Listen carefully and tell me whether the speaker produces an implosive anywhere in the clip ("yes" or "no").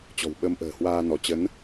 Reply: yes